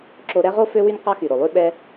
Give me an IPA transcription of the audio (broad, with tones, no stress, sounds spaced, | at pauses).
ǁ o˧ ɾ ɛ˦ ʁ o˦ f ø˦ w y˦ n q ɑ˦ x y˨ ɾ o˨ lˠ ʉ˦ ɓ ɛ˦